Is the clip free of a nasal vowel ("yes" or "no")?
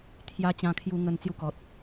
no